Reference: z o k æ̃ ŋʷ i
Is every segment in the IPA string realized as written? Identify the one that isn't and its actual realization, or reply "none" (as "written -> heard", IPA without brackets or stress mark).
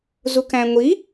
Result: o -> u